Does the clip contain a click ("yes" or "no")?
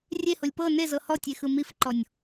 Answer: yes